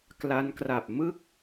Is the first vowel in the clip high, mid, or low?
low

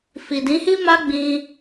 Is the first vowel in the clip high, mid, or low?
high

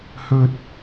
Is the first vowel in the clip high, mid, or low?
mid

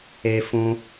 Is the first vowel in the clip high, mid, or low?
mid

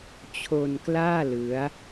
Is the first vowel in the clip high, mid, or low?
mid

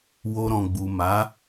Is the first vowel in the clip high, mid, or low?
mid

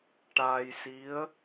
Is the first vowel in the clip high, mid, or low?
low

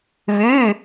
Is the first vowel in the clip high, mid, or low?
high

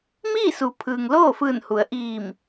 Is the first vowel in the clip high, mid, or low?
high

